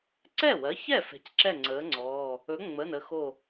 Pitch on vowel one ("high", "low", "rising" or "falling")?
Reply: falling